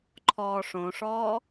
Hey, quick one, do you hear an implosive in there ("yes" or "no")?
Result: no